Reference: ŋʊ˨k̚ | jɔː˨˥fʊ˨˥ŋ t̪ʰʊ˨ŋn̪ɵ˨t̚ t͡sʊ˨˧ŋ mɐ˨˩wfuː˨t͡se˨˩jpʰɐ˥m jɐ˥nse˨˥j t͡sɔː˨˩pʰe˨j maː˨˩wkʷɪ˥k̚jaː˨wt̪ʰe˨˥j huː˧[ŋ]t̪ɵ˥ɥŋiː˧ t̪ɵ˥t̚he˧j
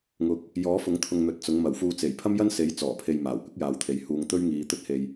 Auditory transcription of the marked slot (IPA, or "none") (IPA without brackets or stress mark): ŋ